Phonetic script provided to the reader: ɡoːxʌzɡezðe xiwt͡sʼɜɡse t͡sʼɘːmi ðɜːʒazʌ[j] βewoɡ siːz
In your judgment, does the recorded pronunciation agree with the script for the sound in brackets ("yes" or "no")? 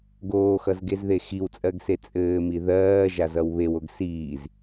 no